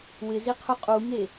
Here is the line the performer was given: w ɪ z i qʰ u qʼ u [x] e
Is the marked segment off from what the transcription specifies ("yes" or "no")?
yes